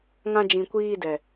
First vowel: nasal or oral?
nasal